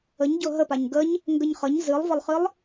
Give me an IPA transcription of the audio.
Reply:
ə ɲ ɟ ʊ ɦ ə p a ɲ ɡ ə ɲ | ŋ ɡ ə ɲ χ ə ɲ z ɨ lˠ v ə lˠ χ ɨ lˠ

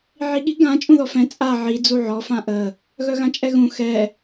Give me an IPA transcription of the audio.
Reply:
ʕ i ɠ i ɡ ã t͡ʃʼ ũ ð ɔ f ɛ̃ t͡sʼ a ʕ i d͡z u ʕ ɔ f ã ʔ ə | ɣ œ ɣ ã t͡ʃʼ ɛ ɣ ũ x ɛ

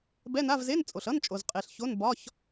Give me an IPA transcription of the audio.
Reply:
b ɛ˧˥˧ n a˧˥˧ v z e˧˥˧ n t͡sʼ o˨ ɬ ʌ˧˥˧ n t͡ʃʼ o˨ z qʼ e˨ ɬ ç o˧˥˧ n b ɒ˧˥˧ ç

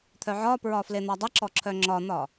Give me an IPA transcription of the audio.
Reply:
t̪ʰ œ ʕ ɒ p ɹ ɒ f l e n̪ ɒ dˤ ɐ ǁ ɔ ǁʰ œ ŋ͡ǁ ɒ n̪ ɒ

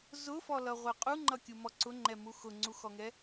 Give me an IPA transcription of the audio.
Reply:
z ʊ f ɔ l ʌ ʁʷ ɛ qʼ u ŋ͡ǃ ʌ kʲ u m ɔ ǀ ʊ ŋ͡ǃ ɛ m u x ʊ ŋ͡ǀ u x ɔ ŋ ɛ

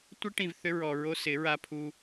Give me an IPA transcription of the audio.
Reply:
tʷ ɪ˦ ʈ ĩ˨ v θ ʏ˦ ɹ ɔ˨ ɹ o˦ s ɪ˨˦ ɹ a˦ pʰ u˦

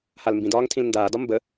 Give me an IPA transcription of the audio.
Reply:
h a l m b ĩ d ɒː ŋ tʰ ĩ l n d aː d ɒ m b ə

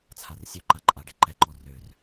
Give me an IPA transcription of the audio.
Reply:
t͡sʰ a r sʲ ø ǃ a ǃʼ a ɖ e ǃ ɛ ǃ ɔ r ø r

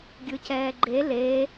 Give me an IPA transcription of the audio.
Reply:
ɡʲ ɯ c ɛː ɡ͡ǃ e l e

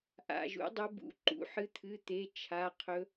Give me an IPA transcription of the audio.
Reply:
ʔ a̰˩˧˩ ʒ ṵ˨˦ dˤ ɵ˨˦ b ṵ˩˧˩ ǃ ṵ˨˦ ħ ɨ˨˦ t̪ʰ ɨ˩˧˩ t̪ e˩˧˩ t͡ʃʰ a˩˧˩ qʰ ɵ˨˦

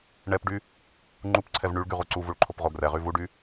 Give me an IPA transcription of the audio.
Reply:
ɳ ɛ p ɖ y | ŋ͡ǃ u p ǀʰ ɛ v ɳ y ɭ ɡ y ʁ u ǀ u v u ɭ ǃʰ o p ʁ o ɡ r ɛ ʁ y v u ɖ y

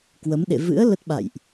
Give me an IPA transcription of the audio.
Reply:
k w ə˨˦ m ɗ ḛ˧˨ v ɨ̰˧˥ ə̯ l ə˦˥ t̚ ɓ a̰˧˨ j ʔ

